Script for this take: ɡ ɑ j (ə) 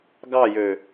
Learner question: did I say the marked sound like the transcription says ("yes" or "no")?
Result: no